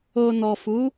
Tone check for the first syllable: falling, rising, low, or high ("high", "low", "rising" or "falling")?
low